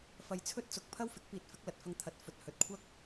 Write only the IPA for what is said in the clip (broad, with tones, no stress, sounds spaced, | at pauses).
f ɐ˧ j t͡sʰ ɵ˥ t̚ t͡s ʊ˨˥ k̚ pʰ ɐ˥ w f ɪ˨˥ k̚ p iː˧ t̚ f ɪ˨˥ k̚ l ɐ˨ t̚ f ɐ˧ ŋ t̪ʰ ɐ˨˥ t̚ f ɵ˧ t̚ h ɵ˧ t̚ kʷʰ ɐ˥ k̚